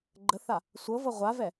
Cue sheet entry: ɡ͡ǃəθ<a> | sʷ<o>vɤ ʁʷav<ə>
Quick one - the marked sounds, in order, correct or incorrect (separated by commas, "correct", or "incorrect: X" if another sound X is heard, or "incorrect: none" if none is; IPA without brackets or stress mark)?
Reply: correct, incorrect: ɤ, incorrect: ɛ